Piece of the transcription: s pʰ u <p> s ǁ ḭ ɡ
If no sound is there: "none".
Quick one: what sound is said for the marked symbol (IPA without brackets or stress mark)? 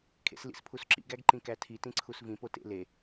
none